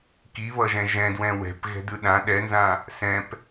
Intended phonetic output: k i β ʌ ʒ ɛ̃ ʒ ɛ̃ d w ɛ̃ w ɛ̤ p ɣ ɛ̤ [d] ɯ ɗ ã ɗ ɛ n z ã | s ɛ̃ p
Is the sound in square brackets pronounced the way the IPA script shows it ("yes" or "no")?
yes